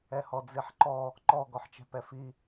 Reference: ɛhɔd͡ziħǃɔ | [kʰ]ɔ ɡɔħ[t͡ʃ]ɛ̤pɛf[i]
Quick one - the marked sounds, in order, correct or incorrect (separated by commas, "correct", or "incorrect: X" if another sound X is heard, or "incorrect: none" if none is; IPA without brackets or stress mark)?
incorrect: ǃ, correct, correct